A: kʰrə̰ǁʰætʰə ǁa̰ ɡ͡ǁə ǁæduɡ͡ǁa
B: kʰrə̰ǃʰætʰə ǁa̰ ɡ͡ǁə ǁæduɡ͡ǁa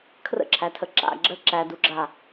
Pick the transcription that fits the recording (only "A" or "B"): A